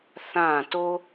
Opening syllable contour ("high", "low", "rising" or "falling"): falling